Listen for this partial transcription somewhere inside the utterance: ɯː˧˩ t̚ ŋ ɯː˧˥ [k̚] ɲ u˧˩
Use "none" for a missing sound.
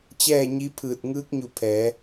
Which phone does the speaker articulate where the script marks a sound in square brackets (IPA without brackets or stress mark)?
k̚